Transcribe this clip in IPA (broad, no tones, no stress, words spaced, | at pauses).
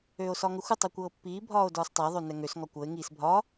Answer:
øːo̯sɒŋəxʷə tˤikʷɤːpːiː bʱɒːo̯dɒːstˤɛ ðˤønɛŋøs ŋɒkʷɤe̯ ŋiːsbʱɒː